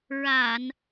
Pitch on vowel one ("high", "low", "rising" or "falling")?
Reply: low